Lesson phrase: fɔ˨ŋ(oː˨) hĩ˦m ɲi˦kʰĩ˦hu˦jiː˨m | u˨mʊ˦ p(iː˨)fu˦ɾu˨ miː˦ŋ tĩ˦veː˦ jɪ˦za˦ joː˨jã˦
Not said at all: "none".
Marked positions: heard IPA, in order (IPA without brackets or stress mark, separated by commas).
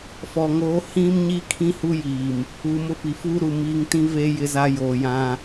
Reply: oː˨˦, i˨